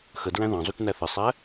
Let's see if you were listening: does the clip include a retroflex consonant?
no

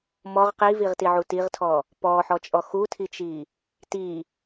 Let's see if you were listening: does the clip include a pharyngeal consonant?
yes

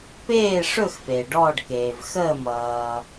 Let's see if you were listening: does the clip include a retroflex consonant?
yes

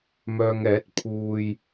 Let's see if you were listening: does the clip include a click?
no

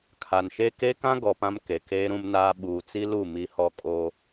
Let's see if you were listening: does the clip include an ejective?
yes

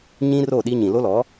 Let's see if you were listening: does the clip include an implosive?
yes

